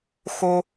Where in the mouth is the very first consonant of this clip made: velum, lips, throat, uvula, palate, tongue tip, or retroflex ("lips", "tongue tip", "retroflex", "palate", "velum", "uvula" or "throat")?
velum